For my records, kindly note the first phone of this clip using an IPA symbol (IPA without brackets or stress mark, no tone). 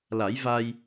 l